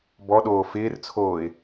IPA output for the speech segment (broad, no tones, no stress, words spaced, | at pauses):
bɔɗoː fɪːrt͡sʰoːɪ̯